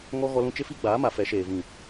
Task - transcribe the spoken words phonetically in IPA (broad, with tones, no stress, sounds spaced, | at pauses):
ŋ ɔ˦ ɣ ɔ˦ l ũ˦ t͡ʃ ɪ˦ f i˦ ɡ͡b aː˨˦ m a˨ f ɛ˨˦ ʃ eː˨ v ĩ˨